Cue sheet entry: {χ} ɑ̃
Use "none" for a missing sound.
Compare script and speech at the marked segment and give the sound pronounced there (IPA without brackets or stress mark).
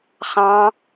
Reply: χ